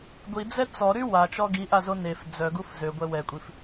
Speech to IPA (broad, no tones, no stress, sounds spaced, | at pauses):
ɡʷ i d͡z ɛ t͡s ɔ ɾ y w a t͡ʃ ɔ ɡ i ʔ a z o n e f d͡z œ ɡ u f z ø ɡʷ ɛ w ɛ kʷʼ i f